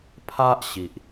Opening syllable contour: high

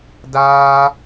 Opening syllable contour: high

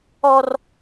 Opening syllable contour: high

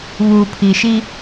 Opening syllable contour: low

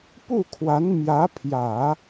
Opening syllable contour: falling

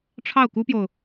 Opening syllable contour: falling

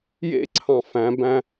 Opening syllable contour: high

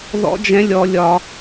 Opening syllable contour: high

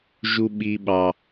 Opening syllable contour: low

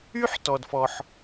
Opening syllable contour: high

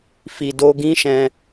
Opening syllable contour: low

